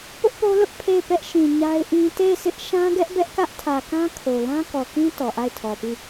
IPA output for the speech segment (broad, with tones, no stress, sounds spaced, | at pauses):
p ʊ˦ ʔ p o˦ l ʊ˦ ʔ pʰ e˦˨ ɪ̯ p ɛ˦ ʔ ʃ ĩ˨ ɲ a˦ ɪ̯ ʔ ĩ˦ t e˦˨ ɪ̯ sʰ ɪ˦ ʔ ʃ ã˦ ɡ ɛ˦ ʔ b ɛ˦ ʔ k ä˦ ʔ tʰ ä˨ k ã˦ kʰ o˨ l ã˦ k ɔ˨ k ĩ˦ t ɔ˨ ʔ a˦˨ ɪ̯ tʰ ɔ˨ p i˦˨